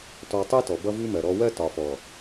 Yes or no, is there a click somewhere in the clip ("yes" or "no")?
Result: no